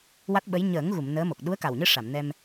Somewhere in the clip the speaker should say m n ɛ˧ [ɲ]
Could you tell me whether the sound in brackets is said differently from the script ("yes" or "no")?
yes